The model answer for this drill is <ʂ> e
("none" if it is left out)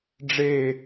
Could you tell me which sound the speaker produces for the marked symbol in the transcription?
ɖ͡ʐ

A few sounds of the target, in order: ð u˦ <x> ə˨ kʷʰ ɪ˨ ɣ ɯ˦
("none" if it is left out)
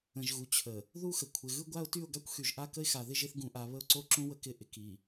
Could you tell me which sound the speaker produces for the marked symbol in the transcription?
x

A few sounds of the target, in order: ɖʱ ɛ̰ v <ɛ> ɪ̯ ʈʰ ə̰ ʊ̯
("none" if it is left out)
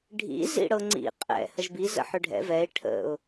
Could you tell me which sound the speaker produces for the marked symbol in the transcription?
ɛ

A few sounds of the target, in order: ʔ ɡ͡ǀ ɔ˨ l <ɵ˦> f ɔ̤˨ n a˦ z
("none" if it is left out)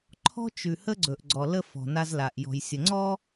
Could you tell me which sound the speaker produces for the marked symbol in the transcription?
ə˦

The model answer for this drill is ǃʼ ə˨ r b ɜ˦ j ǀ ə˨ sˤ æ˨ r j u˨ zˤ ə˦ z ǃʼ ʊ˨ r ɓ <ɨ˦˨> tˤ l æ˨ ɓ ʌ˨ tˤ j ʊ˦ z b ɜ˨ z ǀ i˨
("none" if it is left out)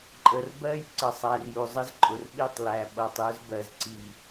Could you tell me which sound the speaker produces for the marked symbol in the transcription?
i˦˨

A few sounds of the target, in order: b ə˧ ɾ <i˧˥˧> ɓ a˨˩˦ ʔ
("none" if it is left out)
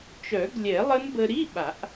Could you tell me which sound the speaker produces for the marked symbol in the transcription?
i˧˥˧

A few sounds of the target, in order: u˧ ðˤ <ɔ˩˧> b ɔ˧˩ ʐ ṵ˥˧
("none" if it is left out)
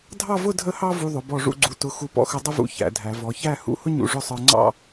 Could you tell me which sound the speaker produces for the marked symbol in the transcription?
ʊ˩˧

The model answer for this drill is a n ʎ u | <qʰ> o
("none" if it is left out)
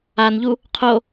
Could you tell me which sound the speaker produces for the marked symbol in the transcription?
qʰ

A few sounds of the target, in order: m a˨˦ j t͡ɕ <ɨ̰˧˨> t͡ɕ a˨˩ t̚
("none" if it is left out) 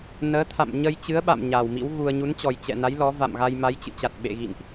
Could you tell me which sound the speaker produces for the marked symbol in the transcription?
ɨ̰˧˨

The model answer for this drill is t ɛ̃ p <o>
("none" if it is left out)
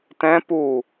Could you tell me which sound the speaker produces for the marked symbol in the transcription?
u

